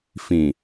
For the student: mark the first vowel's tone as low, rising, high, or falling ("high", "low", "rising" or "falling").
low